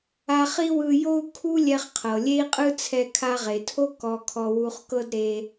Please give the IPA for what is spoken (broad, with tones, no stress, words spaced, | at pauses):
a˧χi˥wɯ˧ jo˥u̯ kʰu˥lʲɛ˧χqʰɤ˩ lʲe˥i̯qʼɯ˥t͡sʰɛ˧ kʰa˧ʁe˩tʰo˥ kɔ˧kʰɔ˧ wu˧χkɤ˥d ɾe˧